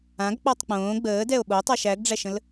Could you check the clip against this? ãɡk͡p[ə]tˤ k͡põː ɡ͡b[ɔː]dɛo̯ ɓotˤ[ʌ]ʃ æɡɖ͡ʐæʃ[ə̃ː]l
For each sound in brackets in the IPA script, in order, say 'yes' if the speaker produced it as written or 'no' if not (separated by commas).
no, no, no, no